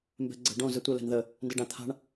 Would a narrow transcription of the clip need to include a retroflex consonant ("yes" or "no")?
yes